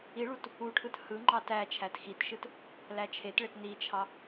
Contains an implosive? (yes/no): no